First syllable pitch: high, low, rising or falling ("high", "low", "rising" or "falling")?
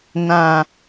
low